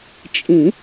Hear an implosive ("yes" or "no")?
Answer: no